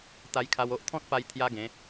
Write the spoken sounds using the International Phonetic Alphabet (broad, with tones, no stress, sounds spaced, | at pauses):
t̪ a˧ j kʰ a˧ w o˦ ʔ t̪ʰ ɔ̃˦ t̚ p a˧ j t̪ʰ j a˦ ɡ ẽ˨˦